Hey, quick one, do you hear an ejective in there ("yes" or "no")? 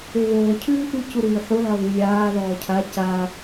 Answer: no